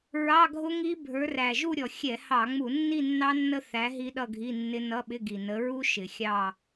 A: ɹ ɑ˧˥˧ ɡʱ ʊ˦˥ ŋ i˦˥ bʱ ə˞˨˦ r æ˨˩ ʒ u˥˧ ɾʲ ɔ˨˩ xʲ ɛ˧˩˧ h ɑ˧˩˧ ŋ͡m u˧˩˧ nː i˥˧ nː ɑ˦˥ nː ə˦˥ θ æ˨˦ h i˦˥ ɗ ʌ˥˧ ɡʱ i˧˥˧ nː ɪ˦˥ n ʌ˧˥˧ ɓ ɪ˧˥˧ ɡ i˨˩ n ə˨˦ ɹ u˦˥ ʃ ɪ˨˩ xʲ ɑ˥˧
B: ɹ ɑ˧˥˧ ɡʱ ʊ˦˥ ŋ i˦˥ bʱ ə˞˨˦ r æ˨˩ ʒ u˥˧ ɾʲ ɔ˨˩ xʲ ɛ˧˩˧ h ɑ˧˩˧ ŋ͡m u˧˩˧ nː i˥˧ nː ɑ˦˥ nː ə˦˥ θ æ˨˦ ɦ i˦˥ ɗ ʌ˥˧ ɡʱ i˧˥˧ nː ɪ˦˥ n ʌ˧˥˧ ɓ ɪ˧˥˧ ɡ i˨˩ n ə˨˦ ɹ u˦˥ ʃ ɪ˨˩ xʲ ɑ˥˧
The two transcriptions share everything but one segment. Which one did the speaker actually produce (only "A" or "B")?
B